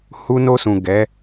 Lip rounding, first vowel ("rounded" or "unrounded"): rounded